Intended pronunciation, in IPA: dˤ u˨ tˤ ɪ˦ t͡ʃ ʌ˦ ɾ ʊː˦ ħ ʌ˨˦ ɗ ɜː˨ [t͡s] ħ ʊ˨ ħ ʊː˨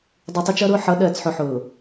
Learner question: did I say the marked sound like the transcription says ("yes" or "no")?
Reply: yes